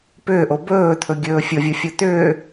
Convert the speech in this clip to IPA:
p ʏː ʔ o b ɵː t̪ʰ ɵ ɡʲ ɵː fʲ ɤ vʲ o fʲ o t̪ ʏː

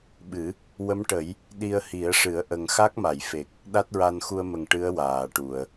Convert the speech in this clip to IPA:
ɓ ɨ˨˩˦ | w ə˧˥ m ʈ ə˨˩˦ j | ɗ i˧ ə̯ h i˨˩˦ ə̯ ʂ ɨ˨˩˦ ə̯ ʔ ə˨˩ ŋ x a˦˥ k̚ m a˨˩˨ j f e˨˩ k̚ | ɗ a˦˥ t̚ ɹ a˧ n x u˧ ə̯ m ə˨˩ ŋ ʈ ɨ˧˥ ə̯ w aː˨˩˨ ʈ u˨˩˨ ə̯

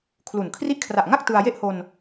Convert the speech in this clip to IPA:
kʰ l u˨˩ n kʰ r i˦˥ ʔ kʰ r a˨˩ ʔ ŋ a˥˩ k̚ t ɯ˧ a̯ j e˥˩ ʔ h o˧ n

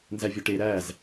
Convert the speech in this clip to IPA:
n z æ vʲ o ʈ e ɾ æ z

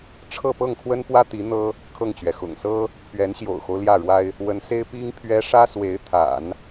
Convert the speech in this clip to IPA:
ʈ͡ʂʰ ɤ˥˧ p ɤ˥˩ ŋ kʰ w ə˥ n p w ä˥ t̪ i˧˥ n̪ ɤ˥ | kʰ ɤ˥˩ ŋ t͡ɕ ɥ ɛ˩ x ʊ̰˨˩ ŋ s ɤ˥ | pʰ ɥ ɛ˧˥ n ɕ j o̰˨˩ ʊ̯ x o˦ ʊ̯ l j ä˥˩ ɻ w a˥ ɪ̯ | w ə˧˥ n s e˥ ɪ̯ p i˥ ŋ pʰ ɥ ɛ˥ ʂ ä˥ s w e˧˥ ɪ̯ t̪ʰ a̰˨˩˦ n

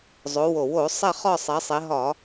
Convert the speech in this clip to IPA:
zˤ o˩˧ w o˨˩ w o˧˩˧ sˤ ɛ˦˨ χ ɒ˦˨ sˤ ɛ˩˧ sˤ e˩˧ ɦ ɒ˧˩˧

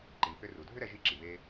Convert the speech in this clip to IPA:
ǃ i˩ n θ ʏ˧ r u˩ dʱ ʏ˥ ɾ ɛ˧ ʒ i˧ ǁ i˩ β e˧

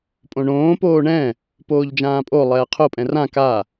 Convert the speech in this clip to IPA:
pʼ õ ɳ õː p oː ɳ ɛ̃ | p oː ʎ d͡ʒ ãː pʼ o lˠ ɛː qʰ o pʼ ɛ̃ r ã k a

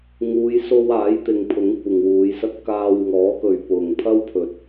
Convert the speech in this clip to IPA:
ŋ uː˨˧ j s o˧ w aː˨˥ j t̪ ɪ˨ ŋ pʰ ʊ˨˥ ŋ kʷ ɪ˨ ŋ w uː˨˧ j s ɐ˥ t̚ k aː˧ w ŋ ɔː˨˥ k ɵ˨ ɥ p ʊ˨ ŋ pʰ ɐ˥ w pʰ ɵ˨ t̚

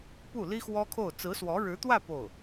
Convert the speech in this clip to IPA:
p u˥˩ l i˥ x w ɔ˥ kʰ o˥˩ ʊ̯ t͡s ɹ̩˧˥ s w ɔ˧˥ ɻ ɻ̩˧˥ t̪ w ä˥˧ p o˥˩ ʊ̯

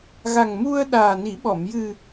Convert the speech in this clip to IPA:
ɣ a˨˩ ŋ m u˧ ə̯ ɗ aː˨˩ n i˨˩˦ ɓ ɔ˨˩˨ m j ɨ˨˩

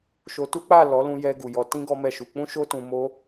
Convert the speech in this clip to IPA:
ʃ o˧ t u˦ k͡p a˦˨ l ɔ˨˦ l ũ˧ j ɛ˧ ɡ u˨ j ɔ˨˦ t ĩ˦ ɡ ɔ˦ m ɛ˦˨ ʃ u˧ k͡p ũ˦ ʃ o˦ t ũ˧ m o˦

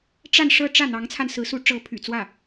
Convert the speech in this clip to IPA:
ʈ͡ʂ a˥˧ n ʂ ɤ˥˧ ʈ͡ʂ ä˥˩ n̪ ɑ˧˥ ŋ t͡sʰ a˧ n s ɹ̩˧˥ s u˧˥ ʈ͡ʂ ɤ˧˥ pʰ y̰˨˩ t͡s w ä˥˩

